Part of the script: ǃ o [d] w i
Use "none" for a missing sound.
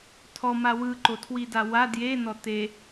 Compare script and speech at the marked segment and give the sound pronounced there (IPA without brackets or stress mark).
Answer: tʰ